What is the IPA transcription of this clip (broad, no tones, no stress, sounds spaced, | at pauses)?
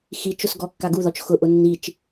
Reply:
x i t͡ʃ ʊ s ɡ ɔ kː a ɡ u ð ɔ t͡ʃ x ʊ ʔ ʊ nː i t͡ʃ